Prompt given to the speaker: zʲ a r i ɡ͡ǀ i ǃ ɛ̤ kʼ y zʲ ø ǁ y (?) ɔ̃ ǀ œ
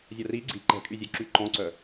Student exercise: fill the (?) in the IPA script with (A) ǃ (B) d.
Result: A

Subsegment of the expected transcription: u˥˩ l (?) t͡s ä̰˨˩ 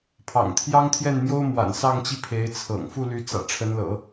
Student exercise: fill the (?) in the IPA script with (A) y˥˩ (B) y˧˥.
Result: B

